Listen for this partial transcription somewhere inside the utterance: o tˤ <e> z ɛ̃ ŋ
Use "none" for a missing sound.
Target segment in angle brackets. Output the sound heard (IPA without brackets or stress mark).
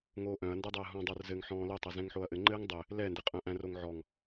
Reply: ɘ